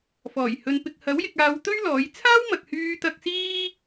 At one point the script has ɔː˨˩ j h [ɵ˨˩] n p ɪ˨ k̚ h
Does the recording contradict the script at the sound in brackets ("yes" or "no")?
yes